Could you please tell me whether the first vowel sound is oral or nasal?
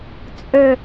oral